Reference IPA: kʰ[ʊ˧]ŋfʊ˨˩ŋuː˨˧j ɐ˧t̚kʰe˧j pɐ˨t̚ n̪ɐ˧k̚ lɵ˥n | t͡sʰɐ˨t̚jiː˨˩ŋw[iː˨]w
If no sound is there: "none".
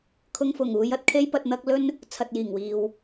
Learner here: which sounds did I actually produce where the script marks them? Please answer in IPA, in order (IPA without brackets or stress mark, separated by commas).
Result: ʊ˧, iː˨